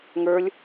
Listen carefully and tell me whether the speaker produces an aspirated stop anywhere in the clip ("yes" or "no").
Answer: no